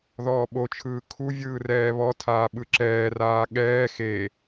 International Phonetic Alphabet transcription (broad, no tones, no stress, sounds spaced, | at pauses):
ð ɔː ɓ o t͡ʃʰ ɯː kʰ u vʲ ɯː r ɛː β ɔ tʰ aː ɓ ɯ ǁ ɛː r aː ɠ ɛː x e